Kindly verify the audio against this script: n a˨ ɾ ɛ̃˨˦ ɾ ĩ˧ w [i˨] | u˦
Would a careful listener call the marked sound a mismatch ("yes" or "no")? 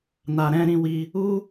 yes